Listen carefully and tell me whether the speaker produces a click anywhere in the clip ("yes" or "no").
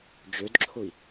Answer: yes